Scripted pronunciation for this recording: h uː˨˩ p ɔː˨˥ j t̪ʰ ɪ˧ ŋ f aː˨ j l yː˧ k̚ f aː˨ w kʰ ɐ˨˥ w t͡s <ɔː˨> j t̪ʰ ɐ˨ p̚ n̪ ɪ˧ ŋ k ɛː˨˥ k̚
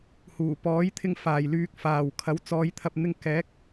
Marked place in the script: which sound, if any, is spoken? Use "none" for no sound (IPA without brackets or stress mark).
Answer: ɔː˨˧